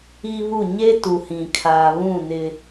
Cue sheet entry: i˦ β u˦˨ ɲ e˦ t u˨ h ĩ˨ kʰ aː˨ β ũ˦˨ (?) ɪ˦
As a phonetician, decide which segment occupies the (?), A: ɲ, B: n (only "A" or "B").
B